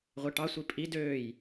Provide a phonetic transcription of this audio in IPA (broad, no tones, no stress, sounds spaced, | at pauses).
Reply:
ʁʷ e ʈ ɑ sʷ i pʼ i d øː j